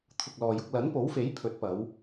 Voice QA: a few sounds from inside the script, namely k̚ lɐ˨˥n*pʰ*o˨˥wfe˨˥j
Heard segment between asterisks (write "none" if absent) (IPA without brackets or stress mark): p